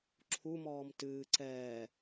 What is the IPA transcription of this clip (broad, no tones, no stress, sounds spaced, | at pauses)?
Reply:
ǁʰ u m ɔː m t ɨː ǀ ɛː